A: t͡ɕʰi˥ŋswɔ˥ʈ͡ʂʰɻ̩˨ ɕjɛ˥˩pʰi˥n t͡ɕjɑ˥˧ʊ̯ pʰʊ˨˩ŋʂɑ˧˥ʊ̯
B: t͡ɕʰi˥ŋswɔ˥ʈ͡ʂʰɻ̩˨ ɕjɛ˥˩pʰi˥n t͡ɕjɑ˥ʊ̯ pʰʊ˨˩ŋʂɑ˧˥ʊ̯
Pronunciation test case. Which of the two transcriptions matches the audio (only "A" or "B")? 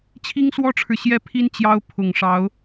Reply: B